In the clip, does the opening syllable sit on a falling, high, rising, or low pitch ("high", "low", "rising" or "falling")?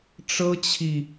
high